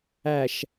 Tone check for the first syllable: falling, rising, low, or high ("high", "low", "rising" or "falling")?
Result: low